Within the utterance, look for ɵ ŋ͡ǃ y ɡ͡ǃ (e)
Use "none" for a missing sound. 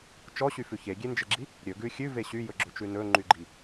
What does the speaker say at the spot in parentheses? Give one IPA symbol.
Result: i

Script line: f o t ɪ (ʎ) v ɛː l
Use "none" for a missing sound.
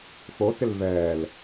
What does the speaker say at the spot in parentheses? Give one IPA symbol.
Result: l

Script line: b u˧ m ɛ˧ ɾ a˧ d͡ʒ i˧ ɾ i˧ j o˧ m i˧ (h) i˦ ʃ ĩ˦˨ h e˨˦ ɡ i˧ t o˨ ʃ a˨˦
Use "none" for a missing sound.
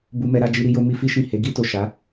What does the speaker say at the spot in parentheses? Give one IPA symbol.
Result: f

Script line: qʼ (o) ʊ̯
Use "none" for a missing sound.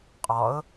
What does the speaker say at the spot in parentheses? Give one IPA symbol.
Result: ɔ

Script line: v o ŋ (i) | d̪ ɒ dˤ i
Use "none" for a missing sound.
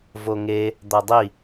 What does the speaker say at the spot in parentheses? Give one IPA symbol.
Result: e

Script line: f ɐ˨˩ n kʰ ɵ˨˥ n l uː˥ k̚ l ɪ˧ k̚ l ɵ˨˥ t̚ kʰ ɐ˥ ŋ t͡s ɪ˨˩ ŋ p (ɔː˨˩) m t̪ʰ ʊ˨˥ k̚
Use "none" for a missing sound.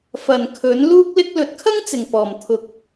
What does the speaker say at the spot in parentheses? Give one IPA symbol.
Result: ɔː˨˩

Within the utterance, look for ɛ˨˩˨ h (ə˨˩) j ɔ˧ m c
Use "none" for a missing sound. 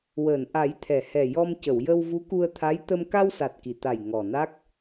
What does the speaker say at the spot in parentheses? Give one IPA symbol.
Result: ɛ˨˩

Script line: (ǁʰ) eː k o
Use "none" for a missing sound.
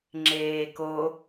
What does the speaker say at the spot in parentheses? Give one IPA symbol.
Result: ŋ͡ǁ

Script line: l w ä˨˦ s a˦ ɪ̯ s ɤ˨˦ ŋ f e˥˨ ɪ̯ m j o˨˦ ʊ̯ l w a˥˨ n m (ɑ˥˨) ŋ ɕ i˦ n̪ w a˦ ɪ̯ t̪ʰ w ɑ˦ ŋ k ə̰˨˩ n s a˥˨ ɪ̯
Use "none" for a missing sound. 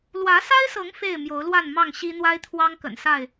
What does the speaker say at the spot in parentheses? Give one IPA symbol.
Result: ɑ˥˨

